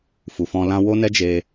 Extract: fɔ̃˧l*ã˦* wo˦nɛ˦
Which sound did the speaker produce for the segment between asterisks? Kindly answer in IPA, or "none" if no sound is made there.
ã˦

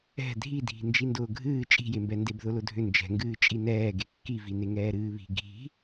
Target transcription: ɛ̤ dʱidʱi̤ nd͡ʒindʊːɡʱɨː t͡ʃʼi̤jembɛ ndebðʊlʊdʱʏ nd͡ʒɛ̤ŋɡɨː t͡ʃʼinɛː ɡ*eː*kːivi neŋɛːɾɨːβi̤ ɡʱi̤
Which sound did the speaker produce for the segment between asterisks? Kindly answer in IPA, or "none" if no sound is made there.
e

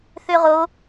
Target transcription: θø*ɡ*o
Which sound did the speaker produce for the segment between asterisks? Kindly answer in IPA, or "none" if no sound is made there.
ʁ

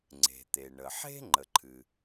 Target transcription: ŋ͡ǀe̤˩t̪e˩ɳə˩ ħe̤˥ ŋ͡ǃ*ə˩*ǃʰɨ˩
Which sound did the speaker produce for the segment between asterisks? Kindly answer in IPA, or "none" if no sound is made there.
ə˩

